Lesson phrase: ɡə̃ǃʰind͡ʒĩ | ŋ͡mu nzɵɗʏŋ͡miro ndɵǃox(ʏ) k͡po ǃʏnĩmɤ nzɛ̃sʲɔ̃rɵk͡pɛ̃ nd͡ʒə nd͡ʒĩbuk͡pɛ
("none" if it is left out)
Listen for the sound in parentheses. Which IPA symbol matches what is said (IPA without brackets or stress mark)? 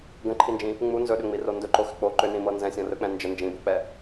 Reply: ʏ